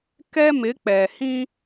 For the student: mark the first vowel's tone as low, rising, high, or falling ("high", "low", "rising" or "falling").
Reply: high